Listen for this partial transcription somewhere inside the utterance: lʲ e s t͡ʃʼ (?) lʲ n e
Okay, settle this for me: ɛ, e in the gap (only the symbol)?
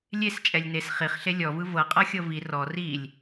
ɛ